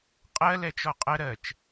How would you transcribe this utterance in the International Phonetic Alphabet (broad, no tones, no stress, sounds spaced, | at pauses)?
qʼ ɜ l ɛ t͡ʃ ɔ qʼ ə ɾ ɜ t͡ʃ